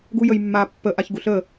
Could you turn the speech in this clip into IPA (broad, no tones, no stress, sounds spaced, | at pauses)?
ɡ u j ə j mː a pː ə ʔ a ç ɡ u ɬ ə